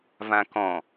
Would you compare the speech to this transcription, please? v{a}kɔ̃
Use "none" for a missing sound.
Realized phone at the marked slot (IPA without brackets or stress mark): ã